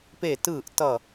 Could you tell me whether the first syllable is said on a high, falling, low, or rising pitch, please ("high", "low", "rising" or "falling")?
falling